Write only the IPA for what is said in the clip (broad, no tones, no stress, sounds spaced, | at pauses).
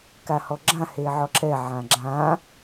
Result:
k a h ɔ ɡ͡ǁ ã h e ʕ ɔ ǁ ɛ ʕ ã ɡ͡ǁ ã